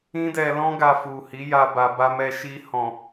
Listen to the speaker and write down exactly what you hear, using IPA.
ĩ˦dɛ˧lɔ̃˦ ɡa˧fu˨hi˨˦ ja˧ba˨ba˧mɛ˧ ʃi˧ hɔ̃˨

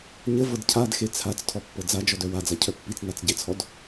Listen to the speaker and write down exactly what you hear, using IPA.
ɲəvɤd cʰadxe t͡sʰat͡s tʰɔpːɤd͡zad͡ʒɔd œwad͡za cʰœpːit͡snat͡s ɟet͡sʰɔd

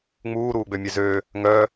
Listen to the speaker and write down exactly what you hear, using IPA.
ŋ͡muːɾuːɡ͡bø mʲøzøː | ŋœ

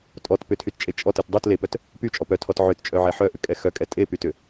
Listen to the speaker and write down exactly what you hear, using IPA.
tʼɔt pʏtʰytt͡ʃʼe t͡ʃʼɔtɯt dˤut lepœt | pyt͡ʃʼɔ pœtʰɔt ʕʏtt͡ʃʼœʕɛ ħœʔʏkʼɛ xœkʼɛ tʼepytʏ

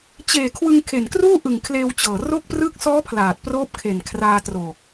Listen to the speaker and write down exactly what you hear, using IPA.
t͡ɕeː˨˩kʰwɯ˧ŋ kʰe˨˩nkruː˥˩ʔɯ˨˩ŋkʰleː˧w t͡ɕɤː˨˩ro˥˩k̚ prɯ˦˥k̚sɔː˦˥ pʰlaː˨˩t̚proː˦˥p̚kʰe˨˩n kʰraː˧tro˨˩k̚

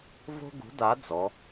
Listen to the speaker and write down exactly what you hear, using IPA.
vo̤˥ɡṳ˨˥da˨˥ d͡zɔ˨˥

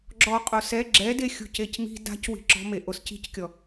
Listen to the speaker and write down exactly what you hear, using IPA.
ɡ͡ǁɔ qʼosɛ ɡ͡ǁɛde xʲṳcecmi̤ da̤c wi̤ǁɔ̤me ʔosci̤ckʲɔ

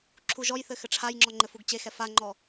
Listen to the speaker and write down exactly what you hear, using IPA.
ǁʰuʒɔjθɘ xɘʈ͡ʂʰajŋ͡ǁɔ ŋ͡ǃɘfuɡt͡ɕexɛ faŋ͡ǃɔ

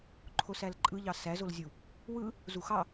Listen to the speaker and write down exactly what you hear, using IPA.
ǃʰosælǃʼɯʎɑ sæzolzʲu | wɯ | zuxɑ

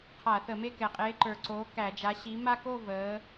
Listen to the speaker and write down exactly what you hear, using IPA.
qʰa˧˩˧θə˧˩˧me˥˧ kɛ˨˩qʼeː˨˥ǃə˞˨˩ǀoː˨˥ kæ˧˩˧d͡ʒa˨˥ ɕi˨˥ ma˥˧koː˥˧ vəː˨˥

